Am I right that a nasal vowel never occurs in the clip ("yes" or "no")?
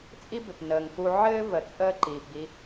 yes